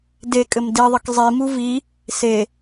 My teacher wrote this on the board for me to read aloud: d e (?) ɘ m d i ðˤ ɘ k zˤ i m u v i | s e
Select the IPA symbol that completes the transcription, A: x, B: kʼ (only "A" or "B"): B